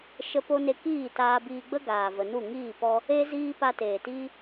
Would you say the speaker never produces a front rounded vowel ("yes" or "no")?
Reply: yes